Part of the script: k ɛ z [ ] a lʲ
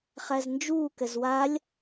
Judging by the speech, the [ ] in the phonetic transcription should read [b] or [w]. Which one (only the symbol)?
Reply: w